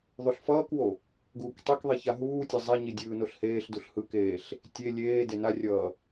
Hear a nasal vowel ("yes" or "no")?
no